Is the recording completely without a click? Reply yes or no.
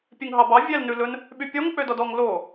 yes